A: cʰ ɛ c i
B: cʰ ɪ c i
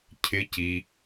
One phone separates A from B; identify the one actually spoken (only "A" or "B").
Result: B